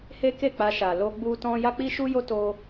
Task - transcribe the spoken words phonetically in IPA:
h e˦ k e˦˨ k͡p a˧ ʃ a˨ l o˧ ɡ͡b u˦ t ɔ̃˦ j a˦ k͡p i˦ ʃ u˦ j o˦ t o˦

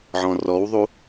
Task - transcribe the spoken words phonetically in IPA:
ʕ ɔ̃ r ɔ w ðˤ u

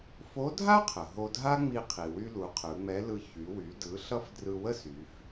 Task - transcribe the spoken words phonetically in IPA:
f o˧˥ dʱ a˥ qʰ ə˩ ɦ o˧ dʱ a˥ ŋ͡m i˧ qʰ i˩ w y˧ l u˩˧ qʰ ɯ˩˧ ŋ͡m ɛ˧˥ l ɯ˧ ç y˩˧ w y˩˧ d ɯ˩˧ ɬ ʌ˧ f d r ɯ˧ w ə˥ s y˩˧ f

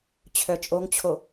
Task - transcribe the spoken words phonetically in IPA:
t͡ɕʰ œ t͡ʃʼ o ŋ t͡ɕʰ o

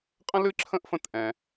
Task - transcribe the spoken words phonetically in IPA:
qʼ ə̃˦ l ɨ˦ ǁʰ ə̃˦ ʔ f ə̃˦˨ t ʔ ɛ̃˧

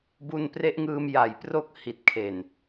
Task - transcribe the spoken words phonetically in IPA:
b u˧ n p r e˦˥ ʔ ŋ ɯː˧ m j a˨˩ j p r o˥˩ k̚ h i˨˩ t̚ kʰ e˨˩ n

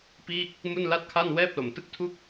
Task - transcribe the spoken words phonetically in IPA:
p iː˥˩ k̚ | m u˥˩ n l a˥˩ t̚ kʰ a˥˩ n w ɛː˥˩ p̚ l o˨˩ m t ɯ˥˩ k̚ tʰ u˥˩ k̚

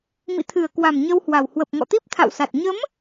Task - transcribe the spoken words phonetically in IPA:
m ḭ˧˨ t̪ʰ ɨ˨˩ ə̯ k w a˨˩ m ɲ ə˧ w h w a˨˩ w h w ə˨˩ p̚ ŋ ɔ̰˧˨ t̪ i˦˥ p̚ t̪ʰ a̰˧˨ w s a˨˩ t̚ ɲ ə˨˦ m

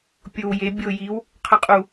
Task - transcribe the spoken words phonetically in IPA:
pʲ o w j e bʲ o j i w | qʰ ʌ qʼ u

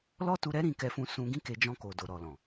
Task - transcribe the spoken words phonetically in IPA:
l ɔ˦ t u˧ ɾ ɛ˦ ɾ ĩ˦˨ k ɛ˧ f ũ˧ s ũ˧ ɡ ĩ˦ k e˧ d͡ʒ ɔ̃˧ k o˨ d o˨ ɾ ɔ˨ l ɔ̃˨

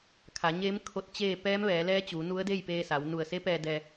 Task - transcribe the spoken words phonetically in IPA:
kʰ a˩˧ ɲ eː˧˥ m kʰ o˧˥ t̚ t͡ɕ eː˥˨ p ɛː˧˥ m ʋ ɛː˩˧ l ɛː˧˥ t͡ɕ uː˩˧ n u˧˥ ə̯ d e˥˨ j p eː˧ s a˩˧ w n u˧˩ ə̯ s e˧˥ p ɛː˧ d ɛː˧

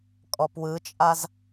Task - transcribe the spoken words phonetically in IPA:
kʼ ɔ p w ɯ t͡ʃʼ a z

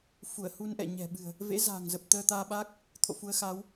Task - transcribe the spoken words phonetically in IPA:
f u˧˩ ə̯ h u˧ n ʔ ɛ̰˧˨ ɲ ɛ̤˨˩ ɓ ɨ̤˨˩ ə̯ | v ḛ˧˥ z a̤ː˨˩ ŋ z ə˨˩ p̚ t̪ əː˧ t̪ aː˧ ɓ aː˦˥ k̚ | t̪ʰ o̰˧˨ f u˨˦ ə̯ x aː˨˦ w

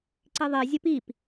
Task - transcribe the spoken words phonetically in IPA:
ǀ i ðˤ i zʲ ə p i p

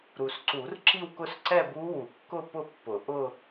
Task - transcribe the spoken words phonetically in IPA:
ɾ u˨ s ǀ u˨˩˦ r ǁ i˥˧ w k ʊ˥˧ s ǀ ɛ˥˧ b u˦˥ w u˨˩˦ kː ʊ˥˧ p ʊ˥˧ pː ʊ˨˩˦ ʔ ʊ˥˧

